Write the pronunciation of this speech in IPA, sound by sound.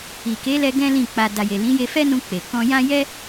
i˨ k e˨˦ l ɛ˧ ɡ ɛ̃˦ l ĩ˦˨ k͡p a˧ d a˨ j e˨ l ĩ˨˦ j e˧ f ɛ˦ n ũ˧ k͡p e˨ k ɔ̃˧ j ã˦ j ɛ˦

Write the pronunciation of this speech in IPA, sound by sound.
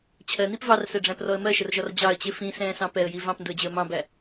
t͡ɕʰ ɜ n i p v ɑ r s ɛ ɖ͡ʐ æ̃ p r ɔ ə̯ m ɜ ʃ ə r ʒ ɒ r d͡ʑ ɑ ə̯ t͡ɕ ɪ f ĩ s ɛ̃ː s ɑ̃ p ɛ ə̯ j i v ɑ̃ p n d ʊ ə̯ d͡ʑ ɪ ə̯ m ɑ̃ b æ

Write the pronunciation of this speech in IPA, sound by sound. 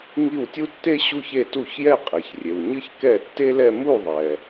ŋ i˥˩ w tʲ u˥ tː e˥ ɕ u˥˧ ç e˥˩ t u˥˩ ç j ɛ˥˧ qʼ e˩ ç rʲ e˩ w ɲ ɨ˥ ç k ɛ˥˩ tː e˥ l ɛ˥˧ m u˥˩ ðˤ ɛ˩

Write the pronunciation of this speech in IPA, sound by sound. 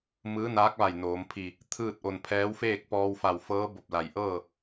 m ɯː˧˥ n aː˧˥ k̚ ʋ a˧˩ j n oː˩˧ m pʰ i˧˩ | t̪ʰ ɯː˥˨ t̚ ʔ o˧˩ n pʰ ɛː˧˥ w f eː˥˨ k̚ p ɔː˧ w f a˧˩ w f ɤː˧˥ b o˧˩ p̚ l a˩ j ʔ ɤː˥˨

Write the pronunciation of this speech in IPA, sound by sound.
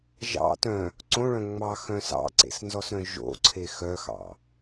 ʒ ɑ̰ t œ̃ | ǀ õ ɭ œ̃ ŋ͡m ɑ x œ̃ s ɑ̰ ǀ ḛ s n z ɔ s ɾ œ̃ ʒ o̰ ǀʰ e x œ x ɑ̰

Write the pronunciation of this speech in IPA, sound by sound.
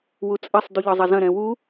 w u t͡sʼ ɐ sˤ d u ʎ ɒ zˤ ɐ z ɐ̃ ɾ ɛ̃ w u

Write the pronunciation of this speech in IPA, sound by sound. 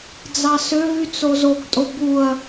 d͡z ɑ s ø v y t͡s o z o ɡ tʼ o b u ɐ̯

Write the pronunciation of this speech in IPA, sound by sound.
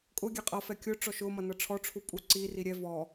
kʼ ʊ ɡʲ ɛ qʼ ʌ f ɛ kʲ ʊ ʈ͡ʂ ɔ ʃ ʊ m ʌ n ʌ ʈ͡ʂʰ ɔ ʈ͡ʂʰ u pʼ u ǀ i r i ɾʲ ɛ v ɔ

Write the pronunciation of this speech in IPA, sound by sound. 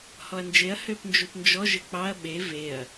h ɔ ɐ̯ n d͡ʒ e ɐ̯ h ø p n d͡ʒ u p n d͡ʒ ɔ ʒ ɘ k͡p ɑ ɐ̯ ɓ e v e ɐ̯

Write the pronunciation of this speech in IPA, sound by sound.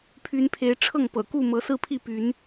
pʰ y˨˦ n pʰ e˨˦ ɪ̯ ʈ͡ʂʰ ɤ˥˨ ŋ p ɤ̰˨˩ k u˥˨ m ɤ˨˦ s ɹ̩˦ pʰ i˥˨ p y˨˦ n

